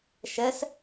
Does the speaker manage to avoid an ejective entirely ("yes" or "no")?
yes